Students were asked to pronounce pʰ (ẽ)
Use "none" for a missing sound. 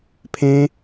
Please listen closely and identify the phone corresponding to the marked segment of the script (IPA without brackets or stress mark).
ẽ